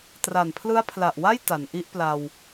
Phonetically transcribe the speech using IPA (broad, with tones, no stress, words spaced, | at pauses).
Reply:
tra˨˩npʰlɯ˦˥a̯pʰla˨˩ʔwa˥˩j ta˩˦nʔi˦˥ʔpla˧w